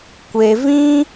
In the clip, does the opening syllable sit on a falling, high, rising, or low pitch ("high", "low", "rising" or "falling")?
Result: low